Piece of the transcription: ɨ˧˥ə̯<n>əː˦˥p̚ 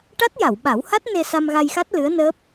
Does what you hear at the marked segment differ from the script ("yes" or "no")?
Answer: no